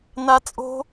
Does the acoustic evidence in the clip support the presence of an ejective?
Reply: yes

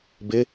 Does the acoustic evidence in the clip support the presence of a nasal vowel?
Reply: no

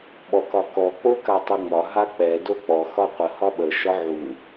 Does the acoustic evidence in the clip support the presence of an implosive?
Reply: yes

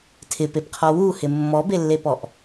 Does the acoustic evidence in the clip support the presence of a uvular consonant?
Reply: yes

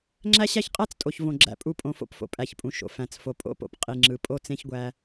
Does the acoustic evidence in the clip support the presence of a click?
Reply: yes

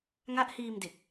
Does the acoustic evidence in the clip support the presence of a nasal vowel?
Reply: no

